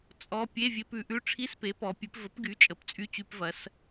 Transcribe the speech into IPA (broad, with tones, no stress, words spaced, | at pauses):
t͡sʼɔ˧˥˧ pʲe˧˥˧vʲe˧pʉ˩˧ ʔʉ˧˥˧ ʈ͡ʂʰi˧˥˧spe˩˥pɔ˩˧ pʲʉ˩˧pvə˩˥pɡy˩˥ t͡ʃʼə˩˧pt͡sʼy˧˥˧t͡ɕy˧pvɐ˩˧s